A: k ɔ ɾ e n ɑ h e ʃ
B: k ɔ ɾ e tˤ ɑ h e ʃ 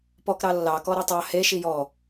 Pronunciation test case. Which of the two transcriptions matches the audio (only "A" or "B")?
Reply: B